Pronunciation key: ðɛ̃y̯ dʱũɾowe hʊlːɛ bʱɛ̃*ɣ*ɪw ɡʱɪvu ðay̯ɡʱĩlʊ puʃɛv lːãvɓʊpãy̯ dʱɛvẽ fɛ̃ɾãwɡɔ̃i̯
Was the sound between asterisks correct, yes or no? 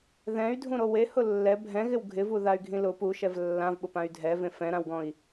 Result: yes